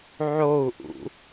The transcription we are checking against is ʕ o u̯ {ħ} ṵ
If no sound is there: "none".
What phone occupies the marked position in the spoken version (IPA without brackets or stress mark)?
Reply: ʔ